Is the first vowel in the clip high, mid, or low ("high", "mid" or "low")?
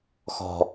mid